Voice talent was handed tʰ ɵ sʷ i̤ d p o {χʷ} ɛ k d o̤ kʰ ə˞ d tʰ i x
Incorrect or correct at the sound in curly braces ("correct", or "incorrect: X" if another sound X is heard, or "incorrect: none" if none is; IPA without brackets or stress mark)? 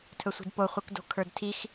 correct